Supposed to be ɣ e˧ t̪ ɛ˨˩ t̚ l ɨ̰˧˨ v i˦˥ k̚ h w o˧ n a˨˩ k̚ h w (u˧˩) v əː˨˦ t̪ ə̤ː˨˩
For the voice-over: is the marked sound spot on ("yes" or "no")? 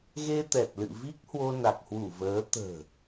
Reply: yes